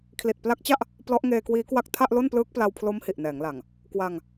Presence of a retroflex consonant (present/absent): absent